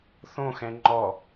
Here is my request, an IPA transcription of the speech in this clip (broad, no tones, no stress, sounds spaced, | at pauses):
θ õ x ɛ̃ ŋ͡ǃ ɔ